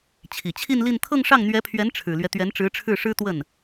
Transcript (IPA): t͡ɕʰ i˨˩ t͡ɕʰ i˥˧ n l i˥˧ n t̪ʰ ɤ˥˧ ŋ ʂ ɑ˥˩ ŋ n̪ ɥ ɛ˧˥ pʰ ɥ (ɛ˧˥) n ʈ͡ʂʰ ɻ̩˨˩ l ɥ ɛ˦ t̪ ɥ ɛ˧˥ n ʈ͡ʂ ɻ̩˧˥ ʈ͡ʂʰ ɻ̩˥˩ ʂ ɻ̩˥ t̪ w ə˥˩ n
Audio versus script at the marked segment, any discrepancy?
no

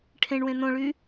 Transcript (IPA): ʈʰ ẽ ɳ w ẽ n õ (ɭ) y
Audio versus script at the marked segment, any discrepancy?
no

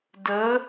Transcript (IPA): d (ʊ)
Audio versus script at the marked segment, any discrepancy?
yes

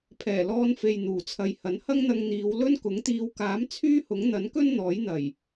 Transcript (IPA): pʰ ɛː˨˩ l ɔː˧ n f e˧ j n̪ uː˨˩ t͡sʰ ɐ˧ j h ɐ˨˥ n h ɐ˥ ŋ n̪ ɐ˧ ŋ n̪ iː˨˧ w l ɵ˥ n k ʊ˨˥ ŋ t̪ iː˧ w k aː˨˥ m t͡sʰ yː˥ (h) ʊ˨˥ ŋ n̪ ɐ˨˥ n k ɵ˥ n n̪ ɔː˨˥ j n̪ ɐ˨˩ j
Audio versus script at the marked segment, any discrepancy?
no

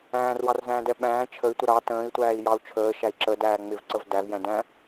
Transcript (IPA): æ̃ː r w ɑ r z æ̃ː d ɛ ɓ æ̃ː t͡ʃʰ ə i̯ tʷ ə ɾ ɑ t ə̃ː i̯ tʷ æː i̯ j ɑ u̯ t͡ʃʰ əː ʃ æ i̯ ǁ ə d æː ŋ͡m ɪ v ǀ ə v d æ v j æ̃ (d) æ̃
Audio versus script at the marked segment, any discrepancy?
no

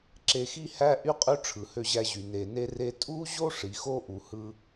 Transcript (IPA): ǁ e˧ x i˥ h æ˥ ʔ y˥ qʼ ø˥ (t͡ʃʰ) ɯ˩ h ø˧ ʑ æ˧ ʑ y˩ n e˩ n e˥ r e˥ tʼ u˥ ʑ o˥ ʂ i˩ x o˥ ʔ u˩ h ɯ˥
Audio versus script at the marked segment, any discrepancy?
yes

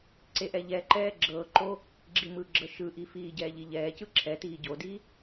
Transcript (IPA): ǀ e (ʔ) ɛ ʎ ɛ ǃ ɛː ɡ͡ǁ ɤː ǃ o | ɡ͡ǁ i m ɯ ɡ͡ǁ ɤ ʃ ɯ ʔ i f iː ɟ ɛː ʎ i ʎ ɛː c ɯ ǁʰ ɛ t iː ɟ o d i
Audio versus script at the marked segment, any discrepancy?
no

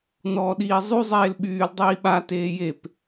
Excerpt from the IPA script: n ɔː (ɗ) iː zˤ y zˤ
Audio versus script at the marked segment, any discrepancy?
no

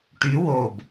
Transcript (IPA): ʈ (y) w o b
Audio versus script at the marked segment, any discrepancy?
no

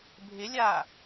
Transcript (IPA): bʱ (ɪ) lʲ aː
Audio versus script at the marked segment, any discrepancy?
no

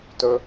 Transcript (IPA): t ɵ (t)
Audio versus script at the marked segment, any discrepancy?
yes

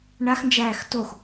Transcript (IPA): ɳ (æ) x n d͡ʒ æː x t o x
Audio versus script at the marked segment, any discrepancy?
yes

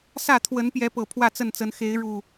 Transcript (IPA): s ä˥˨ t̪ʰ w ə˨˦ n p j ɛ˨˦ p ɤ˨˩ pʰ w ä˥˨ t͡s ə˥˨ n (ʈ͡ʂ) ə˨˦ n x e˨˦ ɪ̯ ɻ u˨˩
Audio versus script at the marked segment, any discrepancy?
yes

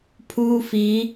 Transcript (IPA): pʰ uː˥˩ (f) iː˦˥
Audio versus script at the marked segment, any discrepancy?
no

